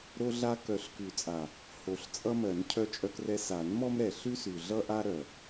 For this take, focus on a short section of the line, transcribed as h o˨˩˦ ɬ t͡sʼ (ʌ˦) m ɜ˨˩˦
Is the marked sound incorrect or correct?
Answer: correct